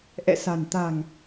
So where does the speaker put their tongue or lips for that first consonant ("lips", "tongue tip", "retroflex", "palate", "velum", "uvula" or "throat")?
throat